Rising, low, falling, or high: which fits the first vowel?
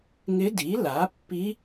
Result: rising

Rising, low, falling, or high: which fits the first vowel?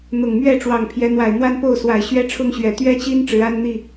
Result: low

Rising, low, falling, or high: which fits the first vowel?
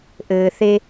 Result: low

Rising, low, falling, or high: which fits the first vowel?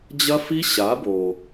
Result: high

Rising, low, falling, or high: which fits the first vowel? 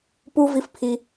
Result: high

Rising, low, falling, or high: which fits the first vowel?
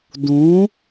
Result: rising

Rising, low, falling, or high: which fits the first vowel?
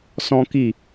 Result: high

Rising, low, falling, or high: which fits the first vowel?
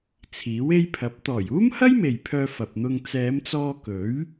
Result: rising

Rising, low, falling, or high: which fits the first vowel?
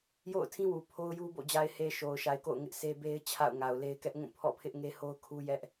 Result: falling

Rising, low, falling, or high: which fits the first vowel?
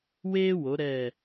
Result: high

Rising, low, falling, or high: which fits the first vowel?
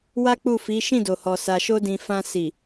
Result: high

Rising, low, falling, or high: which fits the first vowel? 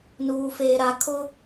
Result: low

